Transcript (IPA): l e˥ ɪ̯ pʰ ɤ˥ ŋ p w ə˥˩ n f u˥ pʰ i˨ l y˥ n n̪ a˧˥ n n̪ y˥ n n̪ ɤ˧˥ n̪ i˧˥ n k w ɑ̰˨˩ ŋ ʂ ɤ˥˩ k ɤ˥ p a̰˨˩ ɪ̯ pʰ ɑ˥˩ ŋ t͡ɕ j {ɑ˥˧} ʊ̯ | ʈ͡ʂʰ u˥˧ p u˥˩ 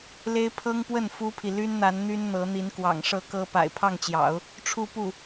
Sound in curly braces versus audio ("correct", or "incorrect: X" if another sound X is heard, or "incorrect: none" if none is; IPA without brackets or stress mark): incorrect: ɑ̰˨˩˦